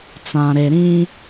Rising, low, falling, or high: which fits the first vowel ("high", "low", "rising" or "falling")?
low